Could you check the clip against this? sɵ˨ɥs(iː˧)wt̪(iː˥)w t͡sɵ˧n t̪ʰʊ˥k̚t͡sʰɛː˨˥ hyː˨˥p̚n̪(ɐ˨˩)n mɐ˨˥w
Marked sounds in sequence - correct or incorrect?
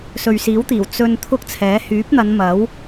incorrect, incorrect, incorrect

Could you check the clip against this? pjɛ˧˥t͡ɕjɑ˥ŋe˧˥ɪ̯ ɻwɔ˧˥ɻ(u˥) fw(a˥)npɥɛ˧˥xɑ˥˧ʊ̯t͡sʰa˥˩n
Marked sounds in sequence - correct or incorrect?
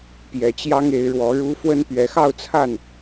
correct, incorrect

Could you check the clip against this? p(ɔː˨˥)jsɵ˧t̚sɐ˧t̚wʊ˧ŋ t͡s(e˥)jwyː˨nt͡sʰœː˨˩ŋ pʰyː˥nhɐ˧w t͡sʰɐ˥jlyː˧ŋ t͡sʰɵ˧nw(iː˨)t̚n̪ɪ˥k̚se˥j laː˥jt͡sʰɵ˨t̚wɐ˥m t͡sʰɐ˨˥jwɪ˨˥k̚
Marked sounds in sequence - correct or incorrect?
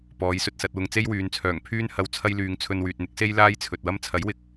incorrect, correct, incorrect

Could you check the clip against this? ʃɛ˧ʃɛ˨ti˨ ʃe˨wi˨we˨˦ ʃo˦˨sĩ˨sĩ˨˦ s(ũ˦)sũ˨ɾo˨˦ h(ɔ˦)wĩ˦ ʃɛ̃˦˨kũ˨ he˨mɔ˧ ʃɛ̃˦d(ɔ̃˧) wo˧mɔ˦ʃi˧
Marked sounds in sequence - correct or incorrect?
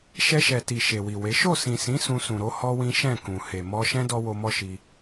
incorrect, correct, incorrect

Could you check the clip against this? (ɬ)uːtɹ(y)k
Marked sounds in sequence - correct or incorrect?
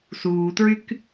incorrect, correct

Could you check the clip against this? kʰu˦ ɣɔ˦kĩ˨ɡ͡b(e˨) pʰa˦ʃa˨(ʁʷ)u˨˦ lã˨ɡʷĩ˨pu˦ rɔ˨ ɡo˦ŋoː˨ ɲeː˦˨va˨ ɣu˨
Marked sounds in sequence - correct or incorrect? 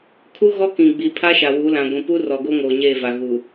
incorrect, incorrect

